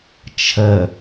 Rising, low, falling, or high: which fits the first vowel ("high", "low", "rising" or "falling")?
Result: low